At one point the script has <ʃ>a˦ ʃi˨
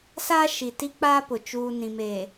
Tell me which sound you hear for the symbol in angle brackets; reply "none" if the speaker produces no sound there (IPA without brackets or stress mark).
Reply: s